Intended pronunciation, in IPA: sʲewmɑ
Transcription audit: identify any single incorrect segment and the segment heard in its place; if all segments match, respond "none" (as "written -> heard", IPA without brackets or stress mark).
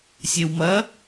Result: ɑ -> ɐ